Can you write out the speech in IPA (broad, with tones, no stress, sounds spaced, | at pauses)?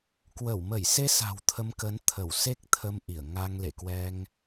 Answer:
k w ə˧˩ w m ə˧˩ j s e˧ s a̤˨˩ w t̪ʰ ə˧ m k ə˨˦ n t̪ʰ ə˧˩ w s e˦˥ k̚ t̪ʰ ə˧ m ʔ i˧˩ ə̯ ŋ a˧ ŋ l ḛ˧˨ k w ɛ˧ ŋ